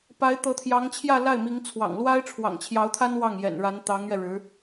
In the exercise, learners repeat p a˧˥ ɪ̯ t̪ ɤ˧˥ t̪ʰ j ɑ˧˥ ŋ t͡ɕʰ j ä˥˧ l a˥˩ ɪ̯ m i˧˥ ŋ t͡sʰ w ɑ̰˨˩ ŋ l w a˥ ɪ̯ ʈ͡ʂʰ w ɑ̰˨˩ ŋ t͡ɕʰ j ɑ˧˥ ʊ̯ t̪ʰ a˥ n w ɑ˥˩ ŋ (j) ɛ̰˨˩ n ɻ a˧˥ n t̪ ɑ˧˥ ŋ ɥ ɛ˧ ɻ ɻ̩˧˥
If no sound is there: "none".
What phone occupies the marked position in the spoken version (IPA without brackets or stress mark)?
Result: j